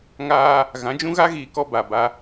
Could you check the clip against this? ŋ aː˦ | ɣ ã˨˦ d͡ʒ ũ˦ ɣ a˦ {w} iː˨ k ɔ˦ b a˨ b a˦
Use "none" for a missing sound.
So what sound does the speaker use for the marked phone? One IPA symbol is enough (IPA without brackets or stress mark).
ɣ